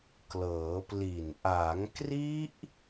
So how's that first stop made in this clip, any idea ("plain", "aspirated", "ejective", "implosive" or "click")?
plain